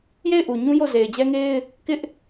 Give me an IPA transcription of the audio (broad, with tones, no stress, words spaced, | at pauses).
je˦˨ɪ̯ʔu˨ɲũ˦ jo˦˨ze˨ɪ̯d͡ʑɛ˦ŋe˦ɪ̯ | kɪ˦ʔ